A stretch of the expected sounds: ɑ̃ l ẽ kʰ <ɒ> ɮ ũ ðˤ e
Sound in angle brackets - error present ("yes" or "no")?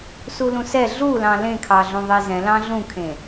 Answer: yes